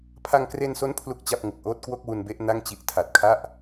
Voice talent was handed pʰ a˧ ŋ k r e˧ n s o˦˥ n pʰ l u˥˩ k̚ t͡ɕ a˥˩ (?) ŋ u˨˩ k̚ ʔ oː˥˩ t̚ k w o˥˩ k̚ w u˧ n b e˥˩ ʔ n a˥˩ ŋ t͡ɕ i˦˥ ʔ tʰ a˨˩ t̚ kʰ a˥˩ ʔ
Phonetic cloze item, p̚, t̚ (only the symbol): p̚